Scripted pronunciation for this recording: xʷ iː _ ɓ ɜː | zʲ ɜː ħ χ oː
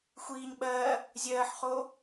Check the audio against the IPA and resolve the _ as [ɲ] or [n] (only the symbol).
ɲ